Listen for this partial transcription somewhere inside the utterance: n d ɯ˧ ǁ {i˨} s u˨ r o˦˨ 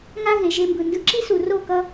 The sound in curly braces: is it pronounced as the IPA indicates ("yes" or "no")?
no